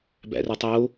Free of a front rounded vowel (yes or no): no